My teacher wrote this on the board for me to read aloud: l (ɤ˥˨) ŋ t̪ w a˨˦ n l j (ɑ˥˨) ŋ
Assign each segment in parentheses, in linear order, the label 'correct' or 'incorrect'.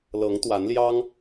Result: incorrect: ɤ˨˦, incorrect: ɑ˦

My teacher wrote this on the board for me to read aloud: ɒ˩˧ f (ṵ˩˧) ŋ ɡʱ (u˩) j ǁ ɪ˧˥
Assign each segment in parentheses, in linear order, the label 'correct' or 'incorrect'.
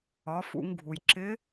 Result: correct, correct

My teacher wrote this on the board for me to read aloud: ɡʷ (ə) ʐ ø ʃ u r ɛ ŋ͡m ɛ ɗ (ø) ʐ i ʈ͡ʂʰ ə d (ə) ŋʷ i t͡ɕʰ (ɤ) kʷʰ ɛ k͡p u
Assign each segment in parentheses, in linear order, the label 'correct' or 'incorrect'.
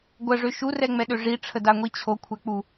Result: correct, correct, incorrect: a, incorrect: o

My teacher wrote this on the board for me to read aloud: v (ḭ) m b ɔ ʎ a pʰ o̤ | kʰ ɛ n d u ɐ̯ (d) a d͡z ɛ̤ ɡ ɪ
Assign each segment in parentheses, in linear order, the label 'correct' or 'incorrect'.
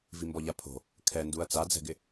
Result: incorrect: i, incorrect: t͡s

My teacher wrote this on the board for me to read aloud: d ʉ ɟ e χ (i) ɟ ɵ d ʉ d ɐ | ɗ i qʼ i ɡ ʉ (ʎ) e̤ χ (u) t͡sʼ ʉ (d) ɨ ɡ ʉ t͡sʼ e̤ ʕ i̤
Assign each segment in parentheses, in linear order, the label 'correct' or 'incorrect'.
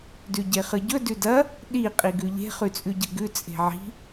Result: incorrect: ɨ, correct, incorrect: ʉ, incorrect: ɟ

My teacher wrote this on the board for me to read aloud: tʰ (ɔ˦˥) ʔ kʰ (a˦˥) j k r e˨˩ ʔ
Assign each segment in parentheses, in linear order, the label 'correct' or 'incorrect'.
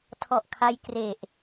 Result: incorrect: ɔ˨˩, correct

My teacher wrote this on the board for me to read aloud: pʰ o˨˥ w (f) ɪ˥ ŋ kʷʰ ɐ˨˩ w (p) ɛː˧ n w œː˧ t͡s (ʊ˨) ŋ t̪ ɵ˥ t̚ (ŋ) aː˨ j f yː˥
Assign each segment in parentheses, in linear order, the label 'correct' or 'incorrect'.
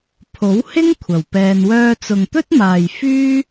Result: incorrect: h, correct, correct, incorrect: m

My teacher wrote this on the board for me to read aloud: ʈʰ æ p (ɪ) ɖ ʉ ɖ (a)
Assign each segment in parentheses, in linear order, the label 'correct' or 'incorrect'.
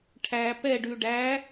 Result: incorrect: ɛ, incorrect: æ

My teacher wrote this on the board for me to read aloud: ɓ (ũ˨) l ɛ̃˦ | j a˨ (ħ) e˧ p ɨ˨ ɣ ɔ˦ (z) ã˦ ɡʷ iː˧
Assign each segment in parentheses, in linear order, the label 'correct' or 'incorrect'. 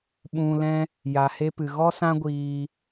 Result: incorrect: ũ˧, incorrect: h, incorrect: s

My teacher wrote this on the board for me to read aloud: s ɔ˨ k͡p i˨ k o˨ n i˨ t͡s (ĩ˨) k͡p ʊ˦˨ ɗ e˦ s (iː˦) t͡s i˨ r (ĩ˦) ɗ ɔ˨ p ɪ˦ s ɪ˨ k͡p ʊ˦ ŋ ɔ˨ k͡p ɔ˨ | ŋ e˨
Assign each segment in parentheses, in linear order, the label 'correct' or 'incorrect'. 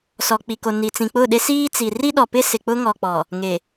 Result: correct, correct, incorrect: i˦

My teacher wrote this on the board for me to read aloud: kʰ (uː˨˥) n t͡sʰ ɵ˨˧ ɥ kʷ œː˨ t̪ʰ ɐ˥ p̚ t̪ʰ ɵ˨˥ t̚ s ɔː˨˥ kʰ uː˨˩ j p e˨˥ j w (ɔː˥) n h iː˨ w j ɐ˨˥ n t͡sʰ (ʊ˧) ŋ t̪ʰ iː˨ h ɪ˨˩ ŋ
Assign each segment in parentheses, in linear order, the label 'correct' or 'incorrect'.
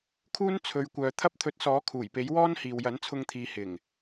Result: incorrect: uː˥, correct, correct

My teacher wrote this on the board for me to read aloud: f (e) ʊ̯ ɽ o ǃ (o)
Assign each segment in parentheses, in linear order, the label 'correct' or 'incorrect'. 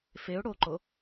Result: correct, correct

